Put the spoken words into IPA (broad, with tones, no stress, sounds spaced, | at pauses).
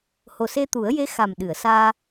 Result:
h o˨˩ s e˧ t̪ u˨˩˦ ə̯ j e˧˥ x a˨˩ m ɗ ɨ˨˩˨ ə̯ s aː˧